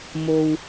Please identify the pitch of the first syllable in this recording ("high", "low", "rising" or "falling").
low